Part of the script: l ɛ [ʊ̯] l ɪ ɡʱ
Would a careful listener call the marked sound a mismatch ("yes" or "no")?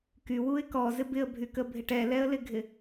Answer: yes